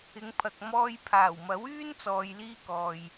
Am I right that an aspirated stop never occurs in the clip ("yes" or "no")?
no